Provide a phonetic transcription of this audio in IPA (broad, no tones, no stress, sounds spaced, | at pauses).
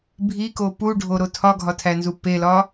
bʱ i k o p u ɖʱ o ɾ o tʰ ɒ ɡʱ ɒ tʰ æ n z u p e l ɒ